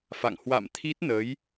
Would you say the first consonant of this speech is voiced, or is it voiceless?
voiceless